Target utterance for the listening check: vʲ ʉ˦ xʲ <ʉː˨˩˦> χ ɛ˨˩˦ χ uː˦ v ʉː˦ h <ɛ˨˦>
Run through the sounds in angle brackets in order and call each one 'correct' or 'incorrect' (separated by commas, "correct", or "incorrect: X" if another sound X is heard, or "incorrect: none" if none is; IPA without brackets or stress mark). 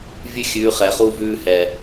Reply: incorrect: ʉː˨˦, incorrect: ɛ˨